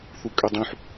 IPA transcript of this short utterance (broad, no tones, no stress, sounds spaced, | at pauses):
θ u kʼ ø dˤ ũ ħ